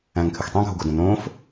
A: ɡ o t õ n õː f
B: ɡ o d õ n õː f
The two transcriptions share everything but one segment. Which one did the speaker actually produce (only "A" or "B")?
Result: B